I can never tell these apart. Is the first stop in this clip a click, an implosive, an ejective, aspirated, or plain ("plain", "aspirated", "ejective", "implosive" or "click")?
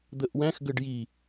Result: plain